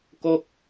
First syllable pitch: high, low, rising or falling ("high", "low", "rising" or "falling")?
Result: falling